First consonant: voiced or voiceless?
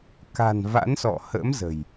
voiceless